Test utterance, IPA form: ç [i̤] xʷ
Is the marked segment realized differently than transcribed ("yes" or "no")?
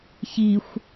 yes